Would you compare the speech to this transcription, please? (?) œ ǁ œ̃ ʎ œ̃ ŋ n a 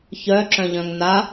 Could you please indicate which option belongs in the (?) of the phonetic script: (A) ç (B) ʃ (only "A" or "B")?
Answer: A